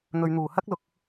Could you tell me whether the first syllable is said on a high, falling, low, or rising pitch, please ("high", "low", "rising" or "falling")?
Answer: low